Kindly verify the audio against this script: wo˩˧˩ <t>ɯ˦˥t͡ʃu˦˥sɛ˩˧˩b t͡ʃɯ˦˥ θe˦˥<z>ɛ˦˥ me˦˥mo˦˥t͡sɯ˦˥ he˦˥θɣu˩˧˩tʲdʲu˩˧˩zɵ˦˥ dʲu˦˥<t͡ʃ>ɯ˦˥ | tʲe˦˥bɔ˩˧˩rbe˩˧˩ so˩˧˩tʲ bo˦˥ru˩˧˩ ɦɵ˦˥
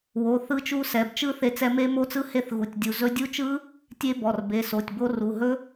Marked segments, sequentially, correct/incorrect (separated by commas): incorrect, incorrect, correct